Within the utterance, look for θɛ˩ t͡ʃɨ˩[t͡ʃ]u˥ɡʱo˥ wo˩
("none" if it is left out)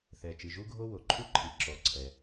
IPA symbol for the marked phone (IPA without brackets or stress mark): ʒ